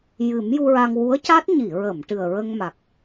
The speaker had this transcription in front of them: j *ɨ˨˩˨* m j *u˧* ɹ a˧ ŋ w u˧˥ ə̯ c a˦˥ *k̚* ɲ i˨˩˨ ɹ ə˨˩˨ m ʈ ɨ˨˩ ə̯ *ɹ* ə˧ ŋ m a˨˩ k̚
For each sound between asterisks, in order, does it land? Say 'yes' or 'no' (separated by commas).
no, yes, no, yes